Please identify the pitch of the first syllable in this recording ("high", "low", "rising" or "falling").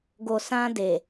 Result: low